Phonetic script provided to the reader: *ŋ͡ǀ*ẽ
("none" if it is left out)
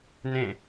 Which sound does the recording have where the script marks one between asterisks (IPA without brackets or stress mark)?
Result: n